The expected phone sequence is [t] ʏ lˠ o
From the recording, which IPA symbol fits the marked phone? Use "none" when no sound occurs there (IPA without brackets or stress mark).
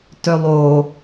t